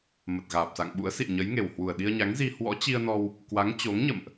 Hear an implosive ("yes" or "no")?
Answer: yes